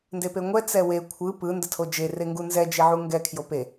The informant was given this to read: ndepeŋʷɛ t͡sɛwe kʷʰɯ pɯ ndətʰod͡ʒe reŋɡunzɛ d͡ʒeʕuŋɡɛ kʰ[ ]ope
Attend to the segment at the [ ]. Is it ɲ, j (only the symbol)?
j